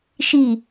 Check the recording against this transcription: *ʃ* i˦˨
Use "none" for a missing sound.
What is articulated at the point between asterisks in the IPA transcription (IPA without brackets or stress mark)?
ʃ